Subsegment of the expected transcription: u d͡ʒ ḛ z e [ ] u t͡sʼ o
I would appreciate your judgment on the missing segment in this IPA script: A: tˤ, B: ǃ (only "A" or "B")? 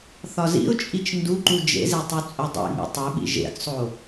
A